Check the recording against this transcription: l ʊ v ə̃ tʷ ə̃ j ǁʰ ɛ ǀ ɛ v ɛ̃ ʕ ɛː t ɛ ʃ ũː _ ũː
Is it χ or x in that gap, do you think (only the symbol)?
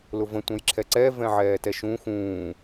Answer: x